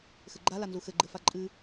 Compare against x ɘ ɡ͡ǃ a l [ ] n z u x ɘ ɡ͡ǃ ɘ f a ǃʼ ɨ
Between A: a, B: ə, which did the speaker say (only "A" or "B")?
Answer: A